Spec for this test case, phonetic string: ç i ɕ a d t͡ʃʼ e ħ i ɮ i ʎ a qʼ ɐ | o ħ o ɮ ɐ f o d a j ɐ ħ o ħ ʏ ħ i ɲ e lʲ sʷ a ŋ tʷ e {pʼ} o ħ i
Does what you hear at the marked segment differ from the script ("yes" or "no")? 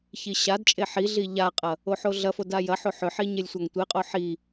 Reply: yes